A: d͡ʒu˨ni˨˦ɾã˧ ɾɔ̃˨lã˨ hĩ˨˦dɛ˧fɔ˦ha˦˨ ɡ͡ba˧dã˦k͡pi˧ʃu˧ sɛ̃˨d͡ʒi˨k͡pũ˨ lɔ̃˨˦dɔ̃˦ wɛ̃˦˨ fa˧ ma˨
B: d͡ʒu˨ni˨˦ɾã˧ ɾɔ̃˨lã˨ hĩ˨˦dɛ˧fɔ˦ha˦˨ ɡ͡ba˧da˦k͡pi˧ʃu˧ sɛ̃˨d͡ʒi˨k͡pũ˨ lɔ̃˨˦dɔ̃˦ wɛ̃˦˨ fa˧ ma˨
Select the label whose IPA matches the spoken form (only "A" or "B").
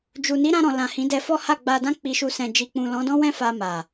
A